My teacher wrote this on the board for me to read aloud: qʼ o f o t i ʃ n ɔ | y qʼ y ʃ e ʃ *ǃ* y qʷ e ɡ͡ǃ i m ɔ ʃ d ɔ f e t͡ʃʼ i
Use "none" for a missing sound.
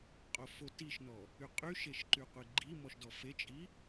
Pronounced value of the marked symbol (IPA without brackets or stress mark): ǃ